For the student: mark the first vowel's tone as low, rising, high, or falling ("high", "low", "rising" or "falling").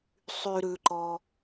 low